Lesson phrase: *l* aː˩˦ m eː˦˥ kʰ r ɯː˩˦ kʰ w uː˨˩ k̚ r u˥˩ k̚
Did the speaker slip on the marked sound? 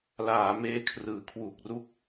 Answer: no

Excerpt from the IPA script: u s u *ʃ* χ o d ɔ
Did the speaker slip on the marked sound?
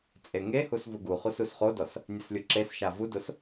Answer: yes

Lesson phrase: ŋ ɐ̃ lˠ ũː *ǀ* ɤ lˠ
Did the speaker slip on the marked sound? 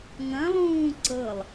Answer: no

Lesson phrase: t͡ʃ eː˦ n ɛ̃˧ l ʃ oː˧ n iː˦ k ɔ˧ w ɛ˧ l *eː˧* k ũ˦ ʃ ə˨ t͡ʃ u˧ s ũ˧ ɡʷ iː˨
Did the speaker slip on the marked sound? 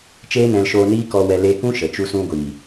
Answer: yes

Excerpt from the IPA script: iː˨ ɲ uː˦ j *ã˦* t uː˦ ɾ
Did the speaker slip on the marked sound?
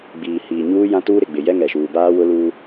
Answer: no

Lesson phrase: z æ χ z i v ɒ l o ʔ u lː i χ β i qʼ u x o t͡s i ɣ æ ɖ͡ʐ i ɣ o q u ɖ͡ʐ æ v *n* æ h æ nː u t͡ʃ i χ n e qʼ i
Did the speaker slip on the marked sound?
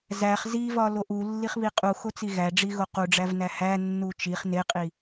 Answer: no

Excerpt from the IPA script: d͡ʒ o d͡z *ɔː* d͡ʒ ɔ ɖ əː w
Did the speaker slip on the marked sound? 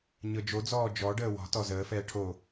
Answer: no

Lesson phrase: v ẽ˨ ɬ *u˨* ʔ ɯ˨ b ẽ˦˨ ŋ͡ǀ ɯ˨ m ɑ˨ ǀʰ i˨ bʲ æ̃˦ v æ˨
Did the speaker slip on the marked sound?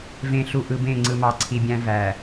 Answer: no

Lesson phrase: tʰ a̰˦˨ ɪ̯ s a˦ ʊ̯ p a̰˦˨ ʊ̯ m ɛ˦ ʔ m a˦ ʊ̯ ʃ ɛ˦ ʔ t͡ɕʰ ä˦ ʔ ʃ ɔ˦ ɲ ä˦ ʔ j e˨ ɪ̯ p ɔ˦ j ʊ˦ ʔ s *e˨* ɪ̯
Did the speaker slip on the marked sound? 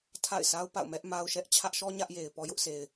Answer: no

